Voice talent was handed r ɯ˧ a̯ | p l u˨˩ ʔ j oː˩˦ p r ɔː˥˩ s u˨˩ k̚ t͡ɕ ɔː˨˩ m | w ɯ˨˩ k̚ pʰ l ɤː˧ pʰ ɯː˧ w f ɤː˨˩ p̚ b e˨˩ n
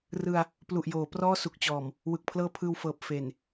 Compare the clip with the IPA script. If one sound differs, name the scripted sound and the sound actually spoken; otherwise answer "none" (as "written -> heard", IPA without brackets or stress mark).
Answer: b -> f